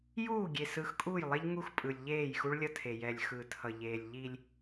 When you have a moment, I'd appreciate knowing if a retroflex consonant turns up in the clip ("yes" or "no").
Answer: yes